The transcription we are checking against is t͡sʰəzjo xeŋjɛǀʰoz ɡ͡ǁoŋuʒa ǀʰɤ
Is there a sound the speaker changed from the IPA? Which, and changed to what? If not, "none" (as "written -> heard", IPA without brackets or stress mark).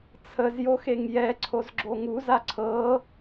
ʒ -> z